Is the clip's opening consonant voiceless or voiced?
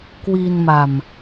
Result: voiceless